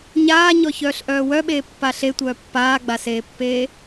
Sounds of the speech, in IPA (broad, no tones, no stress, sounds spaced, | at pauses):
ɲ aː ɲ ɔ ç œː ɬ ʔ œː w œ ɓ eː pː a ɬ e tʷ œː pː aː ɡ͡b a s eː pː eː